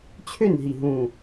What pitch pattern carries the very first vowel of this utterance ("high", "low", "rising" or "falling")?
falling